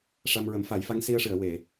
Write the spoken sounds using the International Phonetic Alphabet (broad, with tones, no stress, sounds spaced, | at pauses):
ʂ a˧ m ɹ ə˨˩˦ m f a˨˩˦ j f a˧˥ ŋ s i˧ ə̯ ʂ ɨ˨˩˨ ə̯ w e˨˩˨